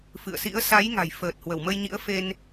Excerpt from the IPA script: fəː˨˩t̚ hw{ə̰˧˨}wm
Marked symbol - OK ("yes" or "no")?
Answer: no